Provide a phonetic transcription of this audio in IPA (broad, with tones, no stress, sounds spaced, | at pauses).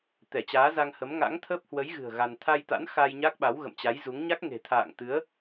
t̪ ɛ˧˩ t͡ɕ aː˨˦ z a˧ ŋ h ə˨˦ m ŋ a̰˧˥ ŋ t̪ʰ əː˦˥ p̚ h w ə˨˦ j ɣ ɨ̤˨˩ ə̯ ɣ a˧ n t̪ʰ a˧ j t̪ a̰˧˥ n x a˧ j ɲ a˦˥ k̚ ɓ a˨˦ w ɣ ə̰˧˨ m t͡ɕ a˨˦ j z u˨˦ ŋ ɲ a˦˥ k̚ ŋ e̤˨˩ t̪ʰ a̰ː˧˨ ŋ t̪ ɨ˨˦ ə̯